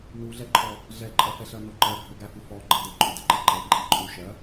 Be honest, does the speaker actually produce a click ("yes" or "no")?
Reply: yes